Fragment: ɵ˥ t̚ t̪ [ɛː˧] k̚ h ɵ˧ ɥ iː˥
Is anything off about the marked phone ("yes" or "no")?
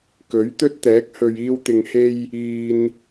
yes